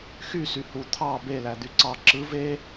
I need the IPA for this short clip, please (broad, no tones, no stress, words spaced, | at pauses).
xysy hu t̪ʰɑ belæ d̪yǀɑ ǁɯ ve